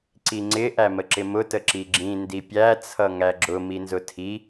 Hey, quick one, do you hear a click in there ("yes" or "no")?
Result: yes